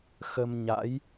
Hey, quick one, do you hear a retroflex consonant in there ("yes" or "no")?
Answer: no